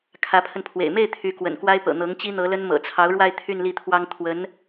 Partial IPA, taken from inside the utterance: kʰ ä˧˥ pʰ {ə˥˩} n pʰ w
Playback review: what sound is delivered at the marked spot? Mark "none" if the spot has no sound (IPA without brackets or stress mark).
ə˧